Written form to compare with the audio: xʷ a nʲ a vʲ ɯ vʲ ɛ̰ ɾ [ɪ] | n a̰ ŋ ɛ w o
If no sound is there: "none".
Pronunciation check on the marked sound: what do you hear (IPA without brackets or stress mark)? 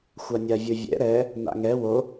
ɛ